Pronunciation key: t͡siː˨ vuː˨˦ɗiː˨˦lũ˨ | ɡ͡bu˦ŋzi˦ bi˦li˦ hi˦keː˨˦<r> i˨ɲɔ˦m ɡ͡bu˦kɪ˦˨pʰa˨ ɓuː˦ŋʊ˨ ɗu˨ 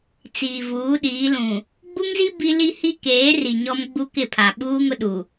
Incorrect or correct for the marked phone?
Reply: correct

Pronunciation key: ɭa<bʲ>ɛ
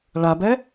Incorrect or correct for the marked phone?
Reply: incorrect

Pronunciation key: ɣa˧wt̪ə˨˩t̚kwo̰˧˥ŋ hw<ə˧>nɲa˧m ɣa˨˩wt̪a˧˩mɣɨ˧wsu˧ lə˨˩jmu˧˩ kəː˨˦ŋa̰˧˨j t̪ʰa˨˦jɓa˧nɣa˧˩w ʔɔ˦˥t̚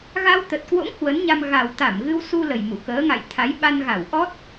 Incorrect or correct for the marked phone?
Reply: incorrect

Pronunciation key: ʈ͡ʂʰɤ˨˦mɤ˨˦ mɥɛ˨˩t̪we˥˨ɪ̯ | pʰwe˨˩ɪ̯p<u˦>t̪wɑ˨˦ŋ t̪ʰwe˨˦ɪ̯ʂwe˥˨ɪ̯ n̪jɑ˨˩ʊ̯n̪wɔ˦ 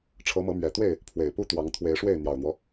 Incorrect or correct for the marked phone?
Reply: correct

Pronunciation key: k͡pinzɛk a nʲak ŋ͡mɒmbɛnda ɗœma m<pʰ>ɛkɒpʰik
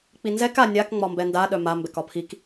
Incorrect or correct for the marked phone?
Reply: incorrect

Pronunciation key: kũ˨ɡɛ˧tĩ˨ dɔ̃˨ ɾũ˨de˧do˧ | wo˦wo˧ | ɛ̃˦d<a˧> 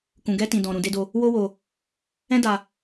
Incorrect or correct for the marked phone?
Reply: correct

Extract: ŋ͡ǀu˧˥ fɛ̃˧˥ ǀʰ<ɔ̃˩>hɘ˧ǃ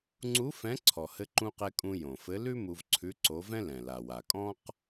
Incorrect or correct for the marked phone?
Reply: incorrect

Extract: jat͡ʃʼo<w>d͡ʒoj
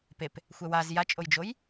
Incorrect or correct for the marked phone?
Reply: incorrect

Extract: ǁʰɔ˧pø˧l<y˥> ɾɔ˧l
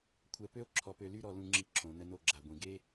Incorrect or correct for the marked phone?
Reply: correct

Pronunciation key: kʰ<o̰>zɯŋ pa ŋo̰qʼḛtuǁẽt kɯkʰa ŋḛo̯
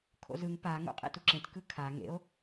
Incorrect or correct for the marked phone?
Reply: correct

